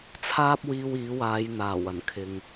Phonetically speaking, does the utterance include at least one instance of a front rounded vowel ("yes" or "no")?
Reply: no